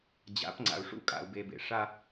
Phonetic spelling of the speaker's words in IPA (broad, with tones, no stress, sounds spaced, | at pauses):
d͡ʑ a̰˨˦ p ŋ͡ǀ a̰˨ u̯ ʂ ṵ˦ kʼ a̰˨ u̯ b e˨ b ḛ˨ ʂ a˦